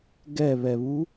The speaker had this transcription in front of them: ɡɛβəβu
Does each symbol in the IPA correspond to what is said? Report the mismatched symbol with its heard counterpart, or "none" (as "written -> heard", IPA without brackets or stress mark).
ə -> ɛ